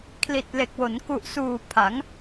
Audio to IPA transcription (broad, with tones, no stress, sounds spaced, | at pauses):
kʰ l i˨˩ t̚ l e˨˩ k̚ w o˩˦ n k u˨˩ ʔ s uː˨˩ pʰ a˩˦ ŋ